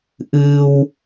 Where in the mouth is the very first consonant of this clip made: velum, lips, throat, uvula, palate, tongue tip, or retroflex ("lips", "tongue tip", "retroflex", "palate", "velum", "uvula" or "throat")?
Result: throat